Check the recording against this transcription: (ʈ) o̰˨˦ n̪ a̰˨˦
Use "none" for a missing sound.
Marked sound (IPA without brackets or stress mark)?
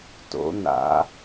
t